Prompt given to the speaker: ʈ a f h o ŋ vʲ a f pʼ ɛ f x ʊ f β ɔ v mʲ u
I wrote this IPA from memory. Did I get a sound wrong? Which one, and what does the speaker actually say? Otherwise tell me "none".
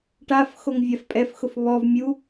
h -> x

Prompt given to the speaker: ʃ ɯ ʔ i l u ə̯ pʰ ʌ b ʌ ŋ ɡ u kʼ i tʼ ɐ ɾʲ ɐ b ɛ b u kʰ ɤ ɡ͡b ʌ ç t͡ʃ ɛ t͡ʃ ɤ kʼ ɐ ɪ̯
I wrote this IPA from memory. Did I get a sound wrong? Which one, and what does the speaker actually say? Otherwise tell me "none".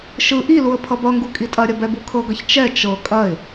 ɡ͡b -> ɡ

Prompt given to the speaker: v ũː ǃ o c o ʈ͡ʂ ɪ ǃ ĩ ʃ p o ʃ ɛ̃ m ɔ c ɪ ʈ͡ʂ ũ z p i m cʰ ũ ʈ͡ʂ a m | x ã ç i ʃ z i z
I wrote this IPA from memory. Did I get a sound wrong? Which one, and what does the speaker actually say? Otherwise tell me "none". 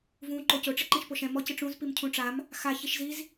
ã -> a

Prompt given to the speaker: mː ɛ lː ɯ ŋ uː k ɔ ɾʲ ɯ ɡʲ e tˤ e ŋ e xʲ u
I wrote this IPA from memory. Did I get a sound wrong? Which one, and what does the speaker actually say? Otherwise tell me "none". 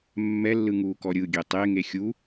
none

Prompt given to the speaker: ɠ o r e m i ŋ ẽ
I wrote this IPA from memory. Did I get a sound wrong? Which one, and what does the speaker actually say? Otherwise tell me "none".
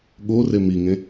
none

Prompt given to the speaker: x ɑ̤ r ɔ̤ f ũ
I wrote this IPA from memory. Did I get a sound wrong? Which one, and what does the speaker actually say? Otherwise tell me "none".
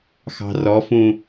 ɔ̤ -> ɔ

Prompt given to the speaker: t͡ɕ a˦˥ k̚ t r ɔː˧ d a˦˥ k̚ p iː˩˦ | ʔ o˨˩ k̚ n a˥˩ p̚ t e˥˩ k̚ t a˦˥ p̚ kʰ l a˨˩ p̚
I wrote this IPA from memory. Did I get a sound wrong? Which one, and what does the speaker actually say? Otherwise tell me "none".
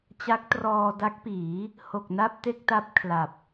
ʔ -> h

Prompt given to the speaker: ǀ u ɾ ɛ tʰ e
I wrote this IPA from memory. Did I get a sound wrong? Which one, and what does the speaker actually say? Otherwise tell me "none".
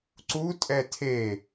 ɾ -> tʼ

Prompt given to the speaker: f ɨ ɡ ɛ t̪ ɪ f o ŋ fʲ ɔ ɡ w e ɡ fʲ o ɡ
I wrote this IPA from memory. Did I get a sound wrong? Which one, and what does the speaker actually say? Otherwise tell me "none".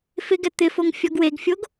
ɨ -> ɪ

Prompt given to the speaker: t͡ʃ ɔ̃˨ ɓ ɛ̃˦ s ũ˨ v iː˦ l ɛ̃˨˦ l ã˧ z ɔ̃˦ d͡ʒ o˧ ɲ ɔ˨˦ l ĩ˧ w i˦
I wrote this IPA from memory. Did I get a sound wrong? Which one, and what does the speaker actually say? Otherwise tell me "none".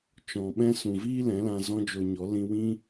i˦ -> ĩ˦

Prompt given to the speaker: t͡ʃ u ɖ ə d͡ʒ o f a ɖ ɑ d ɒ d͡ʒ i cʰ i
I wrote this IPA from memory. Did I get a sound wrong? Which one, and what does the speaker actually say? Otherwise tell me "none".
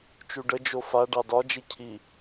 none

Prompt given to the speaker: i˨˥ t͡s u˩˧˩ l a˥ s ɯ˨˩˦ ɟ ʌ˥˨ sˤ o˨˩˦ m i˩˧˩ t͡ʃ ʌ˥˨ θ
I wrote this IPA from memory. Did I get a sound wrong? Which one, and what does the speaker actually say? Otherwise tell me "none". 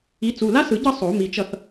none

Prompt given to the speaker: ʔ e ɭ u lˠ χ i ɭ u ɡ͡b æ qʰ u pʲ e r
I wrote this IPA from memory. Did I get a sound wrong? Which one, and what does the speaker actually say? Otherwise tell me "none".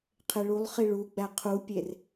ʔ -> qʰ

